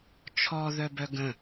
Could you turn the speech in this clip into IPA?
t͡ʃʰ ɔ ð œ b œ ɡ ə̃

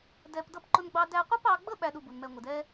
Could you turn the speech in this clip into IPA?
d ɛ˧ p d ʌ˦ p ǃ ʊ˦ n ɡ͡b ɑ˦ d æ˧ qʷ ʌ˦ p ɑ˧ ɡ͡b ə˦ ɓ æ˦ ɗ u˧ b u˨ n m ɛ˧ ŋʷ ɪ˨ d ɛ˦

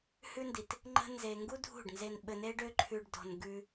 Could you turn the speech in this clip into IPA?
h ʉ˦ n d i˨ t | ŋ͡ǃ ə̤˦ n z e˧ ŋ ɡ u˦ dʱ ṳ˦˨ ɖ n z e˧ n ɓ ɘ˧ n e˦ ɖ ø˦ ǃʰ ʉ˧ ɖ d ɔ̤˧ n ɡ ʉ˧

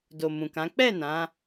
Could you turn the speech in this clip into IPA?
d o˨ m ũ˨ k ã˨˦ k͡p ɛ˦˨ n ã˨˦

